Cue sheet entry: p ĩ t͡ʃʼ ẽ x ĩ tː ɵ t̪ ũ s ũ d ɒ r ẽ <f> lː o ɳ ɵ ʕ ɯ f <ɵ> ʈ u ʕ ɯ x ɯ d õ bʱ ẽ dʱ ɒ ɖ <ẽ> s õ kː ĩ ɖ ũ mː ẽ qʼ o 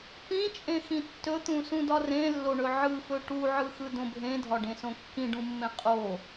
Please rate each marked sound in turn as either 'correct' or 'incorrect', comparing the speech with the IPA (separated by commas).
incorrect, correct, correct